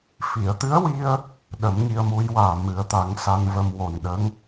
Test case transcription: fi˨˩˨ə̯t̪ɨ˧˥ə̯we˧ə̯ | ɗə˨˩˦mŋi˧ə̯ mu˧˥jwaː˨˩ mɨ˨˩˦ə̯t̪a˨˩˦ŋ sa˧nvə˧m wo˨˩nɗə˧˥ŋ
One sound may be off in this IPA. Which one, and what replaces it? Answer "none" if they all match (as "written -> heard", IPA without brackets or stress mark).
e˧ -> i˧